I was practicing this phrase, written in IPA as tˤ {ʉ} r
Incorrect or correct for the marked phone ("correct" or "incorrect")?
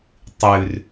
correct